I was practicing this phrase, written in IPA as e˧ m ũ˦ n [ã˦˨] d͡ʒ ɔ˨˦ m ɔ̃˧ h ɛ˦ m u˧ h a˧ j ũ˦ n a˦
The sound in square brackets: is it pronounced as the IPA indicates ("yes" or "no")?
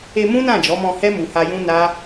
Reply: yes